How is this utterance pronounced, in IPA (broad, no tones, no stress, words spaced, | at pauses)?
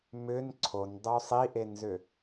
mʏn ǀʰondˤu sˤiʔenzʏ